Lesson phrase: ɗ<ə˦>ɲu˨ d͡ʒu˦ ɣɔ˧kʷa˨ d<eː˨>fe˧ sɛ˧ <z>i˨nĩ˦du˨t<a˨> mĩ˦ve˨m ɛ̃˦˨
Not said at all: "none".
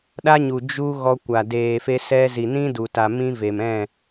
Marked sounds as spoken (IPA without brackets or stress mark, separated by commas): a˦, eː˨, z, a˨